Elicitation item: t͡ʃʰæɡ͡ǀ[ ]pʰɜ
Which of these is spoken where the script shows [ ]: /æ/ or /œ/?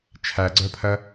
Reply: œ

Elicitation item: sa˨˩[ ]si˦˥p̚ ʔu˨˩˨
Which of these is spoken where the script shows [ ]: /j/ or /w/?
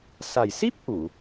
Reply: j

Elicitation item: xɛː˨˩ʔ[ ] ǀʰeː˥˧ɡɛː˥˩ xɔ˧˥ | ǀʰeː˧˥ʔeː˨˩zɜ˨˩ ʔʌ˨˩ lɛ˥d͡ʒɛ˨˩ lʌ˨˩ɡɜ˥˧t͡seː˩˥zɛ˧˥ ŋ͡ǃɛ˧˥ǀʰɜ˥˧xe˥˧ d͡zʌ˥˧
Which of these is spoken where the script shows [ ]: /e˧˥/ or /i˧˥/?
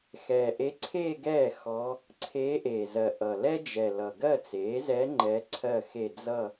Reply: e˧˥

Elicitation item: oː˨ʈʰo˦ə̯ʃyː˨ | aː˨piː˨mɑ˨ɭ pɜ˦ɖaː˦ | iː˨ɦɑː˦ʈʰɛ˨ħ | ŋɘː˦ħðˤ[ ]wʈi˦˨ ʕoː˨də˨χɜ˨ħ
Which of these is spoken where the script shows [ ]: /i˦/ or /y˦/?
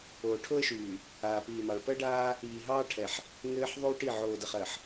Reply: y˦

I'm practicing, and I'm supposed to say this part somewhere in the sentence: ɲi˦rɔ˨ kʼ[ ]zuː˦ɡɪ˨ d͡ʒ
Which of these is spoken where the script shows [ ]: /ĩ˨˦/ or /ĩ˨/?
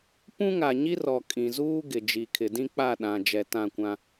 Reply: ĩ˨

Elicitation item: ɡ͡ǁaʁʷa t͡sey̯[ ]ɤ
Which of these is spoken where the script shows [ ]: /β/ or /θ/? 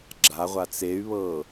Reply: β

